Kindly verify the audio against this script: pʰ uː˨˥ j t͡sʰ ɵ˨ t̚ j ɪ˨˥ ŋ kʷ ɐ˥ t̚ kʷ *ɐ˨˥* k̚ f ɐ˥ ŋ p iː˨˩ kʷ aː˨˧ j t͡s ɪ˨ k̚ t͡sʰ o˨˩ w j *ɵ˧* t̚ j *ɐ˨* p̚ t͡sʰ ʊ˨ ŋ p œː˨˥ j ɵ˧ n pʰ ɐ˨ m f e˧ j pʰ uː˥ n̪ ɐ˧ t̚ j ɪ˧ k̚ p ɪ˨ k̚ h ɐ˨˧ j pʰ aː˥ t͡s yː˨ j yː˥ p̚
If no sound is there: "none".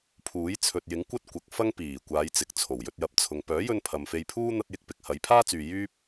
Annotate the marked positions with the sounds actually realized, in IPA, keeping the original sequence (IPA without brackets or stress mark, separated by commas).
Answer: ɐ˨˥, ɵ˧, ɐ˨